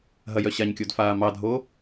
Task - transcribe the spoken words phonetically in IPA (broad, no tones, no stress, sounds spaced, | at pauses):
ɦ ɐ j œ ɕ a ɲ kʲ o d f aː m ɑ dʱ o